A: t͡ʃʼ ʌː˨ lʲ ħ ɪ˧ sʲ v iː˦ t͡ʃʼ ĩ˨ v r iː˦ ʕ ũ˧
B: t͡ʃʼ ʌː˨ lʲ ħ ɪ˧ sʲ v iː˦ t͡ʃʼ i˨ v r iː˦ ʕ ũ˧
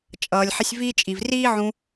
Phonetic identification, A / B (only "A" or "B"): B